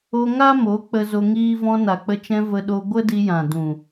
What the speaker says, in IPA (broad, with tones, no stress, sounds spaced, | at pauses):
o˧ ŋ a˦ m o˨˦ k͡p ə˧ z o˧ ŋ iː˦ v ɔ̃˧ n a˨ k͡p ə˧ t͡ʃ ɛ̃˧ v ə˧ ɗ o˧ ɡʷ ə˦ d i˧ j ã˨ d ũ˨